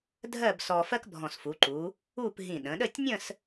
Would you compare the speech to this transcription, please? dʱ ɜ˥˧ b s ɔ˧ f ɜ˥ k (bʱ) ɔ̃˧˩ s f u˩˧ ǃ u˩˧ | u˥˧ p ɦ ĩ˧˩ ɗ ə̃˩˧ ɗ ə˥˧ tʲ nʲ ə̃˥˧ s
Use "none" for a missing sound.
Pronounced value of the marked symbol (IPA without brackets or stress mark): bʱ